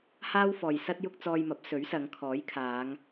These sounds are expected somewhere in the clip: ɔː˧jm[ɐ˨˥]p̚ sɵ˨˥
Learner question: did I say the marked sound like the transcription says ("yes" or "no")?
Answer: yes